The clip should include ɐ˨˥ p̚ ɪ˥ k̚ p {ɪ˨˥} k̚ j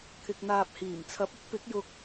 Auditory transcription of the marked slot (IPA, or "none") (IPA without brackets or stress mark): ɪ˨˥